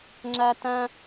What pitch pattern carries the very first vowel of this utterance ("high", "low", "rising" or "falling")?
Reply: high